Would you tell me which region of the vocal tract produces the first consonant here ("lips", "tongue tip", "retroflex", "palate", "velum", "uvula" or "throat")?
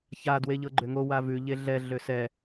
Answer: palate